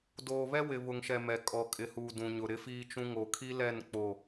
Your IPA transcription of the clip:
d oː˨ β ɛ˦ w ɪ˨ β ʊ˨ ŋ ʃ ɛ˨ m ɛ˨ kʼ ɔ˨ kʼ ɪ˨ h uː˨ d ũ˨ ɲ ʊ˨ ɾ ɪ˦ f iː˦ t͡ʃ ũ˦ ŋ o˨ kʰ i˦ l ɛ˦˨ n k͡p o˦˨

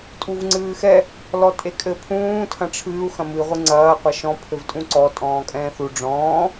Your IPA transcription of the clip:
tʼ u v ŋ͡ǀ ɨː x ɛ | l ɔ tʼ e kʼ ɘ pʰ ũː tʰ ɐ̃ ʈ͡ʂʰ ɨː u̯ x ɐ̃ m ɨ ʁʷ ɨ ŋ͡ǀ ɐː qʷ ɐ ʃ ɔ̃ pʰ ɘ v tʼ ũ ǀ ɔ tʼ ɔ̃ː kʼ ɛ̃ː θ u ɖ͡ʐ ɔ̃ː

